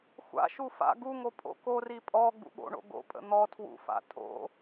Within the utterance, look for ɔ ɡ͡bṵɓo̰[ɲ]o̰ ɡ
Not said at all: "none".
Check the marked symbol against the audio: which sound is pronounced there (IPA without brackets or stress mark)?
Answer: ɳ